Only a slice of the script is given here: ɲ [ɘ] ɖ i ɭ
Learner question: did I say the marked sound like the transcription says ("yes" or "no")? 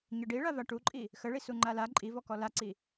yes